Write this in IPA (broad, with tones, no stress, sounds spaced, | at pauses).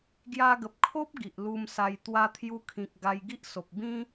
ɡ j a˧ ɡ ə˨ p̚ kʰ o˦ p̚ ɡ i˨ ʔ l u˧ m s a˧ j t̪ w a˧ t̪ʰ j u˧ kʰ ĩ˨ k̚ ɡ a˧ j ɡ i˦ ʔ s o˨ p̚ b ĩ˦